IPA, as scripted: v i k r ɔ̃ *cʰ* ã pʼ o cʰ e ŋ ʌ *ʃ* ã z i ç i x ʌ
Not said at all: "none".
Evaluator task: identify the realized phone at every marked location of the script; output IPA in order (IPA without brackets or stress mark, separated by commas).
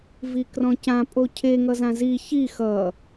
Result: c, z